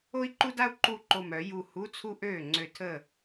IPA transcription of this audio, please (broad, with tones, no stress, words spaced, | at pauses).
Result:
o˥i̯ǃu˥da˥u̯ ǃu˥˩ǃo˧˩mœ˨˩˦ ju˧˩ hu˧˥˧t͡sʰu˥ ʔøː˥˩ ŋ͡ǀø˧˩tʰəː˥˩